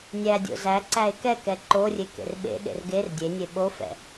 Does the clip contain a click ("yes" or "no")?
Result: yes